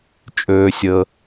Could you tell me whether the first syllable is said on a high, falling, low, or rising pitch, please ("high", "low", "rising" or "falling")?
low